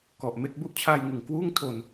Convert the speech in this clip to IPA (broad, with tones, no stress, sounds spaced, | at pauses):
k ɔ˨˩ ʔ m e˥˩ k̚ b u˥˩ ʔ t͡ɕʰ aː˧ j ŋ ɯ˨˩ ŋ k w uː˥˩ ŋ tʰ o˧ n